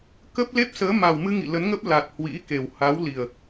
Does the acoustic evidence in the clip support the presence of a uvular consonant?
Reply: no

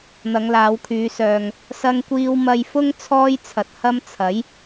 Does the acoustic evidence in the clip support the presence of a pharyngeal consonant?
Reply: no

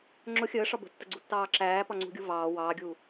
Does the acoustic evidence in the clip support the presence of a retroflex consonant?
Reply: yes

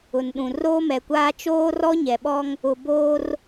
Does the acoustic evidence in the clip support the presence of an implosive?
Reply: yes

